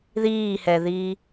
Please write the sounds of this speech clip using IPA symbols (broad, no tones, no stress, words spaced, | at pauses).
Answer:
ðiːhɛðiː